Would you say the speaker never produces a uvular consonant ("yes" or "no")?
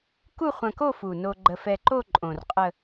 no